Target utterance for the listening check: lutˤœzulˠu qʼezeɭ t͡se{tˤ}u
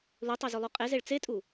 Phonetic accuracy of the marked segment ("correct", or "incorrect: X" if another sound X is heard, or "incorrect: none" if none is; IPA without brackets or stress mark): incorrect: tʼ